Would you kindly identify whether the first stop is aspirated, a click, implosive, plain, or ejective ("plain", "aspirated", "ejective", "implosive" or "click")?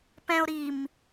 plain